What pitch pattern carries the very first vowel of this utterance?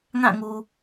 falling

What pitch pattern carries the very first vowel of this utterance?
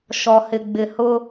low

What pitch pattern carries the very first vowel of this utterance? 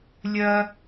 high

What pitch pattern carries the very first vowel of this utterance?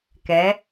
rising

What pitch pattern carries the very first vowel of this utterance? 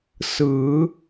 rising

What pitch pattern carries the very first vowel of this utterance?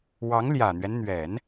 rising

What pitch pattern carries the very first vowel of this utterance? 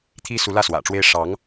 high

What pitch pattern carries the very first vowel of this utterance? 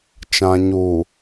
low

